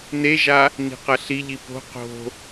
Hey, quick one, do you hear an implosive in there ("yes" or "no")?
no